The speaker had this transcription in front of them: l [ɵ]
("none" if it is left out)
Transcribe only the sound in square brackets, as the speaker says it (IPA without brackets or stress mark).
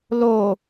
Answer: o